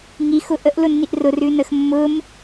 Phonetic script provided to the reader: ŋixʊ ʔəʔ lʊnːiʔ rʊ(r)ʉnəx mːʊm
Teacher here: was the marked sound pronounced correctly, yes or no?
yes